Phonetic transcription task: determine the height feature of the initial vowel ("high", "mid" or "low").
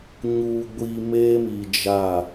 high